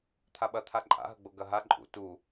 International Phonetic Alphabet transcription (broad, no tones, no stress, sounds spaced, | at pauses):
t̪ʰ a ɓ ɐ t̪ʰ a ǃʼ a̰ ɦ ɐ ɡ͡b o ɡ ɐ ɦ a ǃʼ ṵ t u